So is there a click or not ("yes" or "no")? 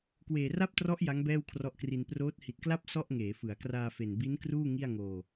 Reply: no